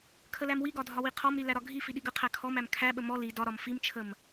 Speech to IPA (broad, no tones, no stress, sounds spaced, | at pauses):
kʰ ə l æ m w i ɡ ɒ dʱ ɒ w i qʰ ɔ m ɾ i l æ ɾ ɒ ɡʱ i f i ɗ i ɡ ə qʰ æ kʰ ɔ m æ m kʰ æ ɓ ə m ɔ l i d ɒ ɾ ɒ m f i m t͡ʃʰ ə m